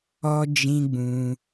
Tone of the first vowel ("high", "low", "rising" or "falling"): high